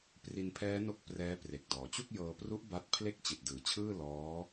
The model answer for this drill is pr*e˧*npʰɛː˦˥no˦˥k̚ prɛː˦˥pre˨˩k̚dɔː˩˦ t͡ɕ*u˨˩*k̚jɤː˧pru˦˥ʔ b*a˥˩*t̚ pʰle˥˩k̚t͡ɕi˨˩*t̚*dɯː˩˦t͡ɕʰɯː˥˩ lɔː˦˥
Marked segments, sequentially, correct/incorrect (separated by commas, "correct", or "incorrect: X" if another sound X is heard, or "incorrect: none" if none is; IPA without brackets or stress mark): incorrect: i˧, incorrect: u˥˩, correct, correct